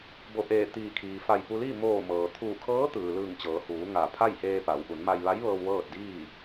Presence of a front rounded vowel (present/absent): absent